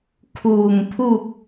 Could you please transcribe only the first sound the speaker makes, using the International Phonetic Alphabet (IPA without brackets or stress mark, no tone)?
kʰ